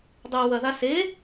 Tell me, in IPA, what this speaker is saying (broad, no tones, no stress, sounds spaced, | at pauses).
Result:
dˤ a w ɐ ð a s e